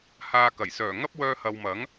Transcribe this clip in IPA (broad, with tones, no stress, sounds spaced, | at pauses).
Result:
h aː˧ k ɐ˨˩ j s œː˨˩ ŋ ɐ˥ p̚ w œː˧ h ɐ˨ w m ɐ˨˥ ŋ